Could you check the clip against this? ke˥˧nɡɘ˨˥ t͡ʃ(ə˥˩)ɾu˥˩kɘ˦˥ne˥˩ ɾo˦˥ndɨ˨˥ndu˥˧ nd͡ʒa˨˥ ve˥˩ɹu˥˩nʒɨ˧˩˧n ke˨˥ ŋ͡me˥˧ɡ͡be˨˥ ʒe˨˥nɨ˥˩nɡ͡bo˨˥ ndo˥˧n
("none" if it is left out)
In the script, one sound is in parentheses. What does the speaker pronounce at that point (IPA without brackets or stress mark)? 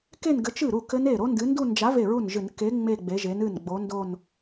ɨ˥˩